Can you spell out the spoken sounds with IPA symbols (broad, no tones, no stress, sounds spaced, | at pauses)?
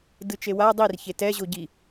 d ɯ t͡ʃ e w a dˤ i r ç e t ɛ ʑ o ɟ i